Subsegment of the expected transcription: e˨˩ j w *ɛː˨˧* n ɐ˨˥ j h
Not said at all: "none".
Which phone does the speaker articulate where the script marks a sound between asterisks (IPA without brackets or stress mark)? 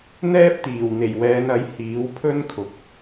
ɛː˨˧